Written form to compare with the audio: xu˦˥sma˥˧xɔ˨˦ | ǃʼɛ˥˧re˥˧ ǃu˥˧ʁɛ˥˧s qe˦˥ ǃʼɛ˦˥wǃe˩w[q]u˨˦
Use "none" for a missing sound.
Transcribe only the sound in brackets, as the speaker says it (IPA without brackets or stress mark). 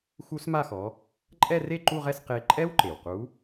q